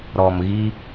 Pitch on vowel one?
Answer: low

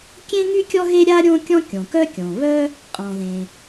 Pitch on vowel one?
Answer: high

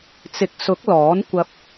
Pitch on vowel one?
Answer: rising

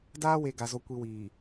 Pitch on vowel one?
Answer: high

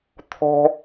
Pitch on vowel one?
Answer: high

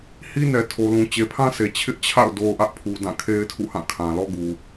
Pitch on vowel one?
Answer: high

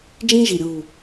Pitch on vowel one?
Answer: high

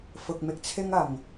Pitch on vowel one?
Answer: low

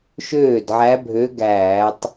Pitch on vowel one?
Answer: falling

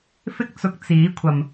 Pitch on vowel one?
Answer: high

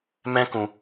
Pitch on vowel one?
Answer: high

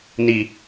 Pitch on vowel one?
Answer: high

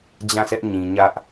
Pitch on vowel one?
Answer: falling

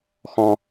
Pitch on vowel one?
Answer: low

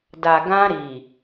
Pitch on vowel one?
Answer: low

